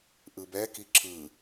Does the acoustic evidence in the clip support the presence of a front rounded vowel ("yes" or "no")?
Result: no